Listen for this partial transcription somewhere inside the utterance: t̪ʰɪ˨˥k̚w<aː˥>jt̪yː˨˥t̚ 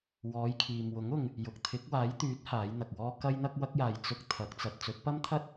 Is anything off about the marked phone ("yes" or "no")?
yes